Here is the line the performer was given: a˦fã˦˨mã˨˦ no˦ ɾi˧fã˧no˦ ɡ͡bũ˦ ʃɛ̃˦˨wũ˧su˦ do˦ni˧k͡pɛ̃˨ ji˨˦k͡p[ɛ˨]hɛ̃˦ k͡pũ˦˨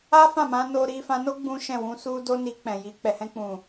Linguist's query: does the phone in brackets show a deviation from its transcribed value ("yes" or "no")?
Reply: yes